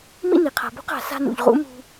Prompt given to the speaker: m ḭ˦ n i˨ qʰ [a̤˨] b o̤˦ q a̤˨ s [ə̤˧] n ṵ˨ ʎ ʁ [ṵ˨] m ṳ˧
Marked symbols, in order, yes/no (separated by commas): yes, no, no